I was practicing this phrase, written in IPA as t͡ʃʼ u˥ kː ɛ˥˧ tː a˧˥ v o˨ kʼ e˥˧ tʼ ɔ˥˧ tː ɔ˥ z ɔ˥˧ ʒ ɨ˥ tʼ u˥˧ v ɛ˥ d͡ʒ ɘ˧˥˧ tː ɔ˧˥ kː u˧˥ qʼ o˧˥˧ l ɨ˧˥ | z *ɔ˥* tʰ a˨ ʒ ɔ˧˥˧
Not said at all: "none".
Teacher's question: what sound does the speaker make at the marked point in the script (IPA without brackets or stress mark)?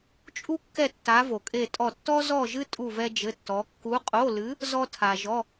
ɔ˥